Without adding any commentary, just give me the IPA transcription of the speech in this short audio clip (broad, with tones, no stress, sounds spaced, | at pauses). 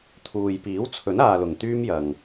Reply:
t̪ʰ uː˨ j p iː˨˥ w t͡sʰ ɵ˨˥ n aː˨ l ʊ˨˩ ŋ t̪ yː˥ m j ɐ˨ ŋ